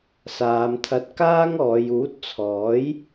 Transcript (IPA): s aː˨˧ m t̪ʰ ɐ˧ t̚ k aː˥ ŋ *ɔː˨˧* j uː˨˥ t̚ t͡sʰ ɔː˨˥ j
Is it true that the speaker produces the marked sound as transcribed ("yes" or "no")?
yes